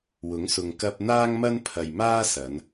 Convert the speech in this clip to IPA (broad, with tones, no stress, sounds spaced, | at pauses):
w ʊ˨˥ ŋ s ʊ˨ ŋ k ɐ˧ p̚ n̪ aː˥ ŋ m ɐ˥ n pʰ ɐ˨ j m aː˥ s ɐ˨˧ n